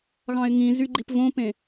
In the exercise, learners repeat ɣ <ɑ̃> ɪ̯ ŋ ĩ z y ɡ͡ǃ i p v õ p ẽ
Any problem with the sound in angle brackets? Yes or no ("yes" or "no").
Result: no